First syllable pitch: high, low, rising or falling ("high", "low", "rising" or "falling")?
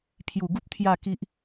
low